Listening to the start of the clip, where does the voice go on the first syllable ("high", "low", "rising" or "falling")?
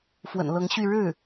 low